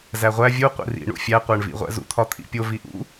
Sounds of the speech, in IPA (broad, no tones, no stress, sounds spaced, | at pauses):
z æ ʁʷ æ vʲ u qʷ ḭ r ḭ ɳ ṵ fʲ æ qʷ æ ɳ v ḭ ʁʷ æ̰ z ṵ t̪ʰ ɒ t̪ʰ ḭ pʲ o v i ʔ ṵ